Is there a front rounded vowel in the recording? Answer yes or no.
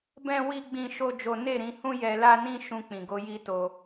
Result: no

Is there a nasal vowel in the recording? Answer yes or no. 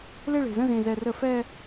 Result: yes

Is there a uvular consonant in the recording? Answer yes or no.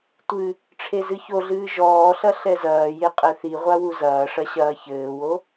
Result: yes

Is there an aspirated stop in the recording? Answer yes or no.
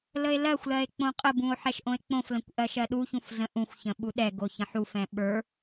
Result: no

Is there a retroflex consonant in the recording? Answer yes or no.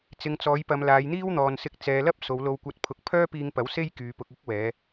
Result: no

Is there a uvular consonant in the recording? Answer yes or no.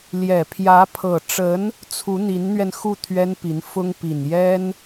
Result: no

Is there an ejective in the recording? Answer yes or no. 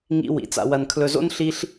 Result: no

